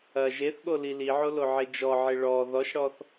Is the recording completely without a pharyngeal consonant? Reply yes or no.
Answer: no